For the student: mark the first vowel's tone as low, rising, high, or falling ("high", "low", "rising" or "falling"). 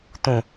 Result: low